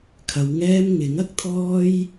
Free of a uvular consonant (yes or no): yes